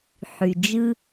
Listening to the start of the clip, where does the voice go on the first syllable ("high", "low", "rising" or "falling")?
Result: low